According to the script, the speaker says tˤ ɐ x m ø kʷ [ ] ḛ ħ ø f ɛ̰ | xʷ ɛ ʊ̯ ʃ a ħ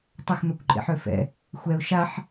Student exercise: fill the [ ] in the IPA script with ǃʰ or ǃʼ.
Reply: ǃʼ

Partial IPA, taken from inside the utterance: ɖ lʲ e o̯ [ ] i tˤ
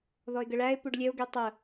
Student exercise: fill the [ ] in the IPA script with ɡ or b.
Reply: ɡ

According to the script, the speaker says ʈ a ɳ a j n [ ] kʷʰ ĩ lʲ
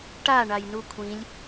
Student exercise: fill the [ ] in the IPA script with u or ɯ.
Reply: u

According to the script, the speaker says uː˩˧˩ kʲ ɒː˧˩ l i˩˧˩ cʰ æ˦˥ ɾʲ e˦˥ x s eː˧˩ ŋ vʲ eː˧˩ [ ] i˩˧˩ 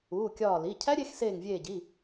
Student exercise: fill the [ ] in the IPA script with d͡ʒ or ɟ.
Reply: ɟ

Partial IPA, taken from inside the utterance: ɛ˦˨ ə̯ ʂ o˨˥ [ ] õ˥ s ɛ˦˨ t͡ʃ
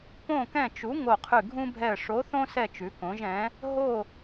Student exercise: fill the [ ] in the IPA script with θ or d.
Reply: θ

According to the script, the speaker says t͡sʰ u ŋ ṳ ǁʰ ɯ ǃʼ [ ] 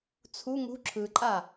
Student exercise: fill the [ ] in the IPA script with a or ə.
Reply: a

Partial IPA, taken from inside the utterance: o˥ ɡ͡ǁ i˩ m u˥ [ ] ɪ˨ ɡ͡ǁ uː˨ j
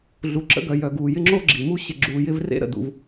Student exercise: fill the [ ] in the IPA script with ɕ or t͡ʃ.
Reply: ɕ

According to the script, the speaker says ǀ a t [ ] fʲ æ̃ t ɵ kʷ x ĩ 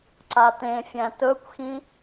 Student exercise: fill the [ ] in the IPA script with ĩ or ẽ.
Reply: ẽ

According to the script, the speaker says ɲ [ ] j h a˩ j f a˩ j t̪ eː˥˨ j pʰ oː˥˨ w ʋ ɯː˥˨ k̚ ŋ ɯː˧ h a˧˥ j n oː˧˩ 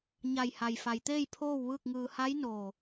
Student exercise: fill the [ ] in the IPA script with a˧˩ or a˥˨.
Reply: a˧˩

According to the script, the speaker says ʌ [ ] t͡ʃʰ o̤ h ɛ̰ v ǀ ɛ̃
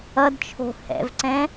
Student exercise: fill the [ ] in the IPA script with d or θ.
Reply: d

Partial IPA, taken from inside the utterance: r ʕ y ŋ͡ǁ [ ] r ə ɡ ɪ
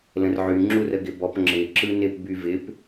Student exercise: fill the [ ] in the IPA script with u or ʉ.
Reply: u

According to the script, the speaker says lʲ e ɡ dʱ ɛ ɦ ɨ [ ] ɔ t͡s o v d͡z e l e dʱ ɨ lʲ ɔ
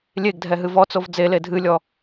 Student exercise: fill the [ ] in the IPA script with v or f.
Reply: v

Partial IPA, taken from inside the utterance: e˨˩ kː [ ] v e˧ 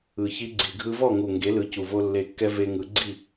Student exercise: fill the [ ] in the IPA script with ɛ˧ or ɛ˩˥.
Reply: ɛ˧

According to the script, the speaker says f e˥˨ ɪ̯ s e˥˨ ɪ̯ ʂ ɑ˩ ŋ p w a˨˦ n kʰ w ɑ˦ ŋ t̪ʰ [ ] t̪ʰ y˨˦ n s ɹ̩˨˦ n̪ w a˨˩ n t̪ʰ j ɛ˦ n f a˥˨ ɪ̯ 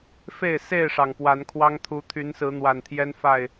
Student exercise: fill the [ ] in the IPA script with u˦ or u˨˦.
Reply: u˨˦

